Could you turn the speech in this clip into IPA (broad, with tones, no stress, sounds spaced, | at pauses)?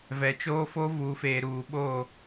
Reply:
v ɛ˨ t͡ʃ oː˦ f o˦ v uː˨ f eː˨ ɾ uː˨ ɓ o˦˨